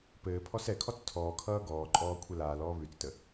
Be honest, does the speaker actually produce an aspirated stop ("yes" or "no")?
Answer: yes